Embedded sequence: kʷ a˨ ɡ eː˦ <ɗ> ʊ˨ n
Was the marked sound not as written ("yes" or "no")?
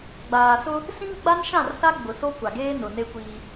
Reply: yes